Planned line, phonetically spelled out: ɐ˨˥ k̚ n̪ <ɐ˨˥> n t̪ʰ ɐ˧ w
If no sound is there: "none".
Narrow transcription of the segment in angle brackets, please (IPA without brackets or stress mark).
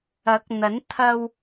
ɐ˨˥